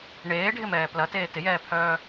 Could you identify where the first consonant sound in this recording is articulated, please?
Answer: retroflex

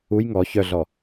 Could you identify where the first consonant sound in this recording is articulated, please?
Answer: palatal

